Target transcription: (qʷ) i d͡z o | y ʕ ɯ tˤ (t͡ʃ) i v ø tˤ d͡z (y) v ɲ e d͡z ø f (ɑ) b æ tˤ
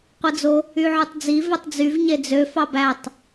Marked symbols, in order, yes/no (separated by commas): yes, no, yes, yes